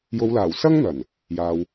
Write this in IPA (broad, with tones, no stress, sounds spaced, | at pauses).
j o˨˧ w l aː˨˩ w s ɐ˥ ŋ n̪ ɐ˨˩ n | j aː˨ w